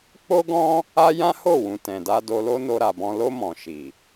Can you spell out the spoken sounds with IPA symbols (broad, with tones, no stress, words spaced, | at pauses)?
k͡po˦ɡɔ̃˦ | a˦ jã˦ho˦˨ wũ˨ tɛ̃˨da˧do˧lo˦ no˧ɾa˨bɔ̃˧ lo˧ mɔ̃˨ʃi˨